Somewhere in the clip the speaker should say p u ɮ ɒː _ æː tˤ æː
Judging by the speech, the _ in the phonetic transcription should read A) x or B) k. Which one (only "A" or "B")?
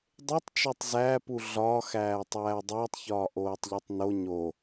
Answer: A